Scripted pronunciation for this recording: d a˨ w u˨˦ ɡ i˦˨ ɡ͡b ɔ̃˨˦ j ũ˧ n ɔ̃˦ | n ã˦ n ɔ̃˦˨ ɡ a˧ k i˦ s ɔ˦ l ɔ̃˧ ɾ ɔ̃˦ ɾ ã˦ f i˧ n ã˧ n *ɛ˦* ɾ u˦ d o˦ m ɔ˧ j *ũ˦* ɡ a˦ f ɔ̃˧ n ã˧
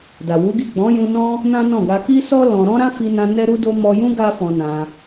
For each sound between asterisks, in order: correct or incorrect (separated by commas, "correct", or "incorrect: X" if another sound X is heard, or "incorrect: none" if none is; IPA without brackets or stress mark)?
correct, correct